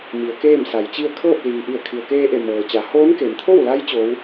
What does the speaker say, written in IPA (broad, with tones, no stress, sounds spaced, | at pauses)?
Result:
m i˩˧ ə̯ k eː˥˨ m s a˩˧ j t͡ɕ i˥˨ ə̯ kʰ ɤː˥˨ p̚ l iː˩ ʔ i˧˩ ə̯ kʰ i˩ ə̯ k eː˧ ʔ e˧˩ m ɤː˩ t͡ɕ a˩˧ h oː˧˥ n k e˩ m t̪ʰ o˥˨ w l a˧˥ j t͡ɕ o˧˥ w